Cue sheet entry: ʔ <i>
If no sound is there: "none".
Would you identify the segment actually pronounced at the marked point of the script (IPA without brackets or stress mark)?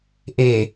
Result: e